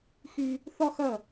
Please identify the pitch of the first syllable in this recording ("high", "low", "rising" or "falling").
high